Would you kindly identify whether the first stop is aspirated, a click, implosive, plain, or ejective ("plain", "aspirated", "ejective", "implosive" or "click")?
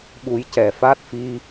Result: implosive